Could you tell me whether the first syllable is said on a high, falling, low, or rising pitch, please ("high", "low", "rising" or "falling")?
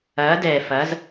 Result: rising